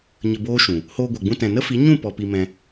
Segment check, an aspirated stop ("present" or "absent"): absent